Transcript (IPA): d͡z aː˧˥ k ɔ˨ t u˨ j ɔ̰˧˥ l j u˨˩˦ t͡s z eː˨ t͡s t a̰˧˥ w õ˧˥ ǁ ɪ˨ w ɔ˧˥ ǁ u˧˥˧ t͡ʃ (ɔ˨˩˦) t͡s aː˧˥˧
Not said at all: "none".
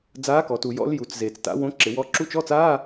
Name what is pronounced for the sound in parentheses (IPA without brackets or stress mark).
ɔ˧˥˧